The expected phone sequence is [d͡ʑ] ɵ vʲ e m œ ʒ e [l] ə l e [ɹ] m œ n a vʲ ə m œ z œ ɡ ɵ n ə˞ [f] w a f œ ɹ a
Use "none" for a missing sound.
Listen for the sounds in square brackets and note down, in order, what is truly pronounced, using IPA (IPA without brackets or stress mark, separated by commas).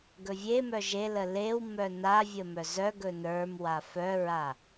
ɡ, l, w, m